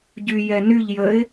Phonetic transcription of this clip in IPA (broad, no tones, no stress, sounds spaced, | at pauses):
ɟ y j ɛ n y ʎ j ə ɪ̯